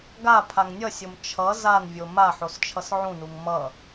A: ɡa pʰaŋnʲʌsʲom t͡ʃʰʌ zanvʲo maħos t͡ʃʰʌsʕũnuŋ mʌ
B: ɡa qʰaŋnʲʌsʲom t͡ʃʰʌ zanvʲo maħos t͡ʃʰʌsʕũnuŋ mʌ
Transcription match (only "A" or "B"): A